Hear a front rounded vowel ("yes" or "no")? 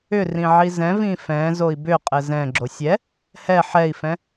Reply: yes